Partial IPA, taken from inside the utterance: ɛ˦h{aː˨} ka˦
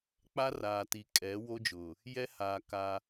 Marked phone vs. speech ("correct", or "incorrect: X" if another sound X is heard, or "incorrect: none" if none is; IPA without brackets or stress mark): correct